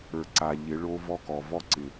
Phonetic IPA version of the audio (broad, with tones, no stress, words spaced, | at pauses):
ə˞˨ ǀa˨ʎɪ˨˦ ɭo˦vɔ˦kɔ˨ vɔ˦ǀɪ˨